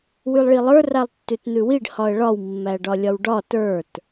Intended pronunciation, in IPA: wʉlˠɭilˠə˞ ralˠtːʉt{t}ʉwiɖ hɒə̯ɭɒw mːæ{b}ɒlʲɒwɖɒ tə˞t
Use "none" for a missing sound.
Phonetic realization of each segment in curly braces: n̪, ɖ

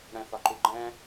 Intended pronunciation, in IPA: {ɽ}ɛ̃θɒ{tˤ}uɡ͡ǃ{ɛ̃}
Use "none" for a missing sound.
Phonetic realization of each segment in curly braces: ɽ, ǃ, ɛ̃

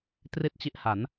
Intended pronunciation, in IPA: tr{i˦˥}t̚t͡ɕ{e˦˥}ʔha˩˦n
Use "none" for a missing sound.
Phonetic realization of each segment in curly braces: i˥˩, i˦˥

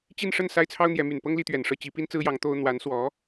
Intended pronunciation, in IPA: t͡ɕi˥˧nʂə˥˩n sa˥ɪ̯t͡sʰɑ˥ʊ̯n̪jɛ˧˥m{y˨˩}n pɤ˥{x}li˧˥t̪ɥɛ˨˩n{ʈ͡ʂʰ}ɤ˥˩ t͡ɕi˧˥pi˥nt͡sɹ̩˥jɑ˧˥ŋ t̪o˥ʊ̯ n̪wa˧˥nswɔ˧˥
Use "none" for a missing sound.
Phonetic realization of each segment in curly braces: y˨˩, ŋ, ʂ

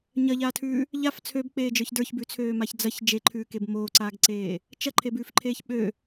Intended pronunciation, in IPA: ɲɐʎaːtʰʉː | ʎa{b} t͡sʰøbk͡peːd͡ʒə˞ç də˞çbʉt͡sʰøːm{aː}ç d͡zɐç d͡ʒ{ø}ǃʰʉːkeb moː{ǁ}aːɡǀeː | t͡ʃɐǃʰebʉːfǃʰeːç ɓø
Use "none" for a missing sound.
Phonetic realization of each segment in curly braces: f, a, e, ǀ

